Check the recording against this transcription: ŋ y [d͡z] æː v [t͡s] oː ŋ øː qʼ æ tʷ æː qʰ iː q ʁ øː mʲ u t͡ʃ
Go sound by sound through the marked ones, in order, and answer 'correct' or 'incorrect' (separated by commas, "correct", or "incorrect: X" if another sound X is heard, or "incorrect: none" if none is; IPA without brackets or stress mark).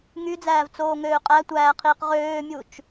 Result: correct, correct